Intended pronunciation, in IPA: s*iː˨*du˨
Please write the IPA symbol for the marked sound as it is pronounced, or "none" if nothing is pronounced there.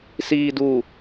iː˨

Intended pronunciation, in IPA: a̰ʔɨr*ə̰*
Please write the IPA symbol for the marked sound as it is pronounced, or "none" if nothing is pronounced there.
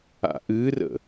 ə̰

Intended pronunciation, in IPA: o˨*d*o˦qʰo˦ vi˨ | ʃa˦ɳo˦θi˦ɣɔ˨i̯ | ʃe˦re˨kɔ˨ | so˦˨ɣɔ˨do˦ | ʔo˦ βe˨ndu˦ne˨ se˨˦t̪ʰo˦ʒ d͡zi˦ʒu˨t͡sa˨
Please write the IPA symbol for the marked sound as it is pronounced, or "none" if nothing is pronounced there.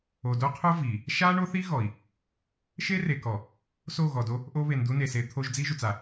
d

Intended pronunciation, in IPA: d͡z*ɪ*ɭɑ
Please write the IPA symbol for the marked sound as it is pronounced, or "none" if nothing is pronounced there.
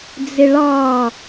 ɪ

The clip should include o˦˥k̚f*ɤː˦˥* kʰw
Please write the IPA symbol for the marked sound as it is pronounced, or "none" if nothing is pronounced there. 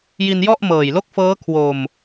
ɤː˦˥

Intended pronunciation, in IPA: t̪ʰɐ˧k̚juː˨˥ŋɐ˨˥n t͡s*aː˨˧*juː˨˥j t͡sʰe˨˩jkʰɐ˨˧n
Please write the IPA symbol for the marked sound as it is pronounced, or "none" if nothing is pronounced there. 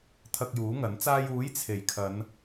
aː˧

